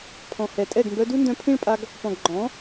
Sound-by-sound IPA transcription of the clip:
pʰ ɔ̃˨ h ɛ˨ tʼ ɛ˦˨ ɡ m b œ˧ d u˦ n d œ̃˧ pʰ ĩ˦ ɭ pʼ a˧ ɡ | p ɔ̃˨ ɡ ɡ͡ǃ ɔ̃˨˦

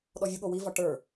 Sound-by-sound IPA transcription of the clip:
ɗ ɔ vʲ ʊ ɠ o w i v ɒ ʈ ə˞

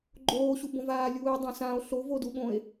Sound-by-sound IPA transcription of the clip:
ɡ͡ǃ oː ɕ u b õ v aː lʲ uː e̯ dˤ õ s ã o̯ ɬ o v o d u ɠ õ e̯

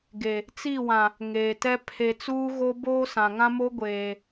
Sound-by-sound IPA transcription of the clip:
ɡ e˨ | t͡s i˦˨ w ã˨ | ŋ eː˨ t ɛ˦ pʰ e˨ t͡s uː˦ ɣ o˦ b oː˦ s ã˨ ŋ ã˦ m o˦ ɡʷ eː˨

